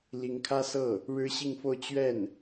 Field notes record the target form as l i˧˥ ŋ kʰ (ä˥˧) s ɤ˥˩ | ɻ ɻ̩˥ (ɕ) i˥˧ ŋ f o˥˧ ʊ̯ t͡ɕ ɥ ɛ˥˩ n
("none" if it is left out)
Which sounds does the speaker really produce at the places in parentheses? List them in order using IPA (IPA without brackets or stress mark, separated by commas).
ä˥, ɕ